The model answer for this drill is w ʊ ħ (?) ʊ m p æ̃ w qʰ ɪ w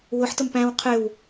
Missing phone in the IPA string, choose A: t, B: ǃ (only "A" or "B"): A